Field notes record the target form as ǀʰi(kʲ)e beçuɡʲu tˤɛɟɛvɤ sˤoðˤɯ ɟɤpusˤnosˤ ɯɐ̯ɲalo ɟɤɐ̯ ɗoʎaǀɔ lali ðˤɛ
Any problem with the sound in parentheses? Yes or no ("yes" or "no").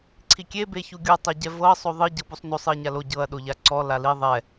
no